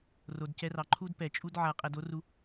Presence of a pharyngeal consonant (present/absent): present